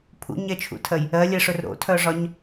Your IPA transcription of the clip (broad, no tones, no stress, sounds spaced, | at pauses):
pʰ ṵ ɲ ɛ t͡ʃʰ ṵ tʰ ɜ j | ɜ lʲ ɛ ʂ ɵ r ɾ o̰ tʰ œ ʐ ɒ ɲ